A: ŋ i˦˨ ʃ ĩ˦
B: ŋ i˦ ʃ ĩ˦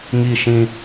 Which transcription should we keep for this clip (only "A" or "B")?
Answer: A